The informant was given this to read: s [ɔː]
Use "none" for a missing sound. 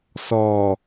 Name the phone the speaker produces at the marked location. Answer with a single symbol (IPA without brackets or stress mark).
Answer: ɔː